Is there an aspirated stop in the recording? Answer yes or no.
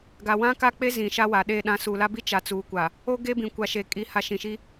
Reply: no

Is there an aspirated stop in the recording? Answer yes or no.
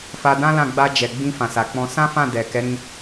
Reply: no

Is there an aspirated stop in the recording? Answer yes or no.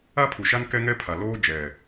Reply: yes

